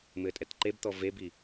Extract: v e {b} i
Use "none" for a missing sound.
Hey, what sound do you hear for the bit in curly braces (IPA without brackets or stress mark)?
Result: b